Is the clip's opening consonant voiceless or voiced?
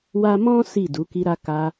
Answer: voiced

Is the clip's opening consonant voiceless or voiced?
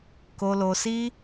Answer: voiceless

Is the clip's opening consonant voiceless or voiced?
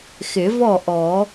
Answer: voiceless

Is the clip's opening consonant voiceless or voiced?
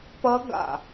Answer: voiceless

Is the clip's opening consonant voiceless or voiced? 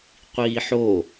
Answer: voiceless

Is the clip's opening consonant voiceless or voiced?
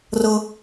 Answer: voiced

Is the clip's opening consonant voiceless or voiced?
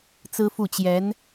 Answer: voiceless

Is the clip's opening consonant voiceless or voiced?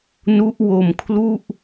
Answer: voiced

